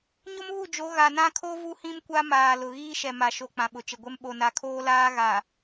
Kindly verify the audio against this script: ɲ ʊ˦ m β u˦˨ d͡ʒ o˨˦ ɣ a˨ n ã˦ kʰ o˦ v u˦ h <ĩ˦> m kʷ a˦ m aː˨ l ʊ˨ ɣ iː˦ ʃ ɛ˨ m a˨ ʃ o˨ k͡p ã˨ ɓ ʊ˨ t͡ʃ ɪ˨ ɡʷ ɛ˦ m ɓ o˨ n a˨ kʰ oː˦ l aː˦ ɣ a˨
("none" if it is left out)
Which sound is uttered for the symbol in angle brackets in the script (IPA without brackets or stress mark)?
ĩ˦